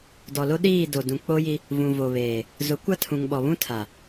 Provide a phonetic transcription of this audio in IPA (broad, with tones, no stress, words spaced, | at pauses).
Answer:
dɔ˨lo˦ ɗiː˦˨do˨ dũ˨k͡po˦ji˦ | vũ˨vo˨βeː˨ | zʊ˨˦ kʷa˦tʰũ˨ŋɓɔ˨ βũ˦tʰa˨